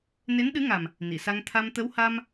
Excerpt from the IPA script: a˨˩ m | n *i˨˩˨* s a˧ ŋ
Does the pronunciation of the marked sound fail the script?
no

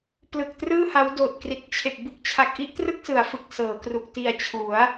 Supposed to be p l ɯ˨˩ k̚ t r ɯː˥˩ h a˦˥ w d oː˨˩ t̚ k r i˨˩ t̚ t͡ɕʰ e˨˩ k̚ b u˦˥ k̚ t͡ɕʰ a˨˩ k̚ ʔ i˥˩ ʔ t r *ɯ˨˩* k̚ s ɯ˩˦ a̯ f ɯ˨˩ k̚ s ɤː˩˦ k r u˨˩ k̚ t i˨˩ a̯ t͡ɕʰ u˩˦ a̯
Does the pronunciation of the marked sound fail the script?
yes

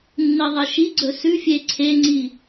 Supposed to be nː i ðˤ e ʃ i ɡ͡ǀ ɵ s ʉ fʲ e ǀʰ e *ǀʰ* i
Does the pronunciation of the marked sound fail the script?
yes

